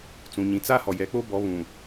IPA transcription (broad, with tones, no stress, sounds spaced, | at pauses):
t͡s ũ˨ ɲ ĩ˨ t͡s a˦ h ɔ˨ j ɛ˨˦ k͡p o˦ b ɔ˨˦ β ũ˨